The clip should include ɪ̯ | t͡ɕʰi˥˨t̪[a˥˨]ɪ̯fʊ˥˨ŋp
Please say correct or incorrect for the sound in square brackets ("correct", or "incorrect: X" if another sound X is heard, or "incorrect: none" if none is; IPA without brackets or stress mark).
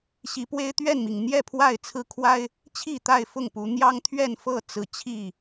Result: correct